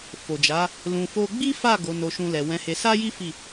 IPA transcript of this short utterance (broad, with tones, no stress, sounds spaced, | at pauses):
f o˨ d͡ʒ a˨˦ | l ũ˨ f o˧ ɡ͡b i˦ f a˦˨ ɡ o˨˦ n o˧ ʃ ũ˧ l ɛ˨ w ɛ̃˨˦ h e˧ s a˦ j i˦ f i˦˨